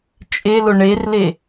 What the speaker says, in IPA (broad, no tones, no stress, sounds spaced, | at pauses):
t͡ʃʼ e l ʊ ɳ e r l e